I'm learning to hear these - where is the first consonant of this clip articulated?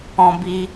lips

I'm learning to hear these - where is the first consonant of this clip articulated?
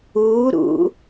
tongue tip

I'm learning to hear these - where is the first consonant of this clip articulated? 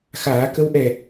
velum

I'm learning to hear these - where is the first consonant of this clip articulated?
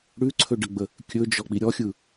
retroflex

